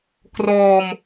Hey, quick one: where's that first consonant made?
velum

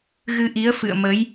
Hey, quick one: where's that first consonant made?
velum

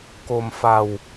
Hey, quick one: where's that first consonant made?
velum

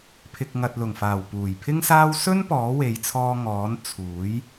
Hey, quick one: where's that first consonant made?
lips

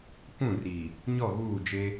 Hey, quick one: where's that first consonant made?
velum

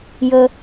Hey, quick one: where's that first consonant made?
palate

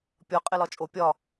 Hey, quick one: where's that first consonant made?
lips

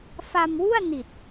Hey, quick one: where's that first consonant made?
lips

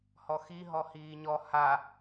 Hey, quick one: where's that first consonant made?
throat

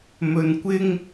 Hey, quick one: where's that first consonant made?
lips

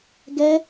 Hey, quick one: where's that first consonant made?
velum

